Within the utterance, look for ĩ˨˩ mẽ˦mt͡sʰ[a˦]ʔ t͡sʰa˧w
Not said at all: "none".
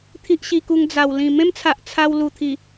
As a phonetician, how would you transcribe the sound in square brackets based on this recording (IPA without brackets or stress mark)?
a˨